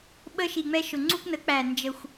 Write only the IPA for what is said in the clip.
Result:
ɓə˧ʃi˨˩ŋ͡mɛ˧ ʃʊ˨˩ŋ͡ǀu˧knə˩˥k͡pæ˨˩ nd͡ʒə˨˩xʷ

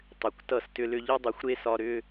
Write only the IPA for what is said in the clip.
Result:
tˤʏ˨kʷtʌ˦˨stʏ˦lʏ˦ ʎʌ˦dˤʏ˨˦xʷɾe˦ sɒ˦ ɾʏ˦

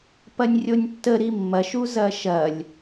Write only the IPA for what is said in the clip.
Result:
pɐnʲrʲonʲtːə ɾimːɐʃ uzɐʃɐlʲ

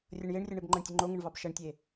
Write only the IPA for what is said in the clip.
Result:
rʲʌɳjeɳrʲʌɳeb ŋ͡ǃʌɳtʲəŋ͡ǃoŋəɳ vɑbʃɐɳtʲe

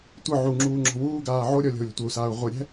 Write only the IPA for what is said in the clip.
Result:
tʷɯ ʕuŋ͡ǁuː ŋ͡ǁɔ̤wuːɡaː ʕoɾʲɔ lʲɔ̤u̯lʲɔ̤tʷɤu̯saːu̯ ʁʷɯɾʲɛ̤

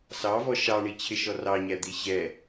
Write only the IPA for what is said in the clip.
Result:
sɑvɔ ʃɑɳit͡ɕʰɪʃɔ rɑɲæd̪i ɕɛ

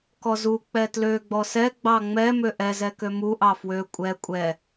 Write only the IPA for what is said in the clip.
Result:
kɔzu k͡pɛtlø ɡ͡bɔsɛ ɡ͡bɑŋ͡mɛ møʔɛzɛkø muʔɑ fwø kʷʼɛ kʷʼɛ

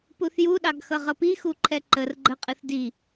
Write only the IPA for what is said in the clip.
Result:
puθjuɗɑɡ xʌʁʌpixu ǃʰɛǃər ɡ͡ǃəqʼɨθ di

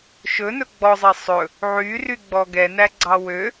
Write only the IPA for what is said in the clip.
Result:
ʃɵnɵ ɡ͡bɔzˤɛ sˤɵ | ʕyryɡ͡bɔ ɡɛnæɡ͡ǀɑ wø

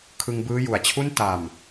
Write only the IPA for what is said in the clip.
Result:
kʰɯ˧ŋbɯː˦˥ju˨˩a̯t͡ɕʰu˥˩n ta˨˩m

